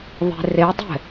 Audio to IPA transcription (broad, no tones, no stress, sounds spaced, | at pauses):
ðˤ e̤ r e dˤ ɛ̤